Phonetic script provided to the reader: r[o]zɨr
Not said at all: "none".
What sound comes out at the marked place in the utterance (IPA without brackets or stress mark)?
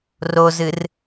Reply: o